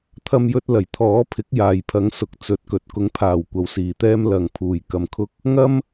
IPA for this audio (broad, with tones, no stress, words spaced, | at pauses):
t̪ʰɐ˧mjɵ˧t̚lɐ˨˩j t̪ʰɔː˨˥pʰɪ˨˥k̚ jaː˨jpʰɐ˨˥ŋsʊ˨k̚ t͡sɵ˨˥t̚kɵ˨t̚ kʊ˨˥ŋpʰaː˨˩w kʷɐ˨˥wsiː˨t̪ɛː˥m lɐ˨ŋpʰuː˨˩j kɐ˨mkʰʊ˧k̚ | ŋɐ˥m